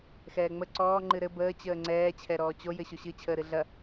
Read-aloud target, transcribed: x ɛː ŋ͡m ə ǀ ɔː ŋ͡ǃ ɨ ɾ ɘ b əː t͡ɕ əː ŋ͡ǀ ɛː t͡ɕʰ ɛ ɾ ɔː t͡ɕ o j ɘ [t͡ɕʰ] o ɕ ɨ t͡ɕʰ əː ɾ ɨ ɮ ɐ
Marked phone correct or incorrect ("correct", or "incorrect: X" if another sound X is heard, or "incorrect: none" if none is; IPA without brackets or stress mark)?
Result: incorrect: ɕ